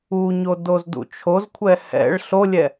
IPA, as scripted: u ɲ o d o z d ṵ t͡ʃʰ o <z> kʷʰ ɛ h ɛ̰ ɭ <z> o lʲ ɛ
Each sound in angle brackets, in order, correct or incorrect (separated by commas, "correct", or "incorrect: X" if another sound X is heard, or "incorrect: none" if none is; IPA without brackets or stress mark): correct, incorrect: ɬ